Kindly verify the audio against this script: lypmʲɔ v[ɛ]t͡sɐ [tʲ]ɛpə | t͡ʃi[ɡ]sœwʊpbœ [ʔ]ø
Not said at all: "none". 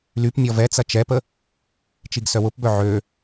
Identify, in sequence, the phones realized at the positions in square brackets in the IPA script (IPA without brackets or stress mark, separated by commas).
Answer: ɛ, t͡ʃ, ɡ, ʕ